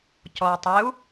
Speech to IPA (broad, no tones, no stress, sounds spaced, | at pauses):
c ɔ u̯ tˤ e u̯